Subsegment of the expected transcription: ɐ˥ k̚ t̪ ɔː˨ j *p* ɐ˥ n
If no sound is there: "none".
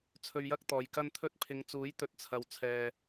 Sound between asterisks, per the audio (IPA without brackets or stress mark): k